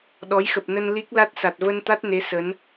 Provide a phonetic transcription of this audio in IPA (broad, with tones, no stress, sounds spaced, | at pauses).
ɗ ɔ˨˦ j x ə˨˩ p̚ n ə˧ n l i˦˥ k̚ l a˦˥ t̚ s a˨˩ t̚ v ə˧ n t̪ a˦˥ t̚ n e˨˦ s ə˨˦ n